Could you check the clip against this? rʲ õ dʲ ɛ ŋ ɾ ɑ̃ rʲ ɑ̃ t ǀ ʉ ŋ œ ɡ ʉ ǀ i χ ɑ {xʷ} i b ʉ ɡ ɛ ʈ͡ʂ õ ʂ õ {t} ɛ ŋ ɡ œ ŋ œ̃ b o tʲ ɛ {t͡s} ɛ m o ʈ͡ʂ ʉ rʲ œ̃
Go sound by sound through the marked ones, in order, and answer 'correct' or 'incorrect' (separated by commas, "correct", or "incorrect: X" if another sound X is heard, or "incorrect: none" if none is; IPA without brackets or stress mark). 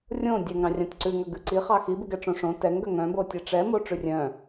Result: incorrect: x, correct, incorrect: ʈ͡ʂ